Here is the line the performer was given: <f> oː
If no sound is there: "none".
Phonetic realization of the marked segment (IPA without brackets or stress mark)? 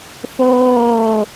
f